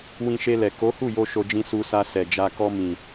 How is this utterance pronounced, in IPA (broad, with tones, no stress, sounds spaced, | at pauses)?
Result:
w ĩ˧ ʃ e˧ l ɛ˨ k o˨˦ h u˦˨ j o˧ ʃ o˧ d͡ʒ ĩ˧ s u˧ s a˧ s ɛ˨ d͡ʒ a˧ k ɔ˧ m ĩ˨